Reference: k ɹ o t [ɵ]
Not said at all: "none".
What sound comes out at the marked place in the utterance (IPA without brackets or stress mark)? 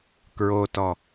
ɔ